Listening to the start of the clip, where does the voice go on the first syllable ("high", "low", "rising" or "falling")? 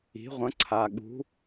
rising